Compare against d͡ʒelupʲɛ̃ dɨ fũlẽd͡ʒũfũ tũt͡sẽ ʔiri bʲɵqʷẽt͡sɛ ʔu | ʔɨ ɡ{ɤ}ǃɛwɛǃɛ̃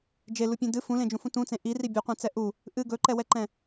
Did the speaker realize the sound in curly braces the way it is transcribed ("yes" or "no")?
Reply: no